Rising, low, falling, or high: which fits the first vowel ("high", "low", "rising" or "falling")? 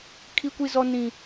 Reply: high